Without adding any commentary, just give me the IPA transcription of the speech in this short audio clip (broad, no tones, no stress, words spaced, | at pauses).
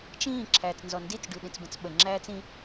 t͡ʃĩː ǁʰæːt͡snzɔndit͡s ɖʉɗĩt͡sbə̃t͡sɓə ŋ͡ǁæːt͡sĩ